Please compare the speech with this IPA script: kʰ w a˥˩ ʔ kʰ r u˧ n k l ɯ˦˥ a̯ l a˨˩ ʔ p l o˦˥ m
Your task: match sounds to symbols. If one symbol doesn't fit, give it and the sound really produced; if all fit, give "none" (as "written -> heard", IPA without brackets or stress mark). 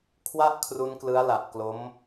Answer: p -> k